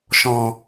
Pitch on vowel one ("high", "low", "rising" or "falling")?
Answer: low